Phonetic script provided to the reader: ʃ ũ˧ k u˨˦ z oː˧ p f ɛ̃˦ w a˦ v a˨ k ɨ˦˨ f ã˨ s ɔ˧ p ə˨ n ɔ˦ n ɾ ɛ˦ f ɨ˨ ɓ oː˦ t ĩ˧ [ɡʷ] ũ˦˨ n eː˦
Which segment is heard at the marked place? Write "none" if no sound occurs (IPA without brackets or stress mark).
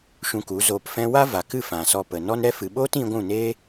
ɡʷ